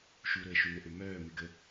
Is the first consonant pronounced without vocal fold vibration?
yes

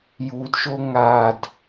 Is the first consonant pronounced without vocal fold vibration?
no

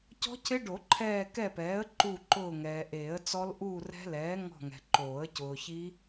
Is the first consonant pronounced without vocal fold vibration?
yes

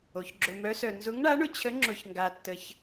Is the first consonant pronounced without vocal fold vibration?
yes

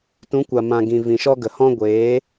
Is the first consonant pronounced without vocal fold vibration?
yes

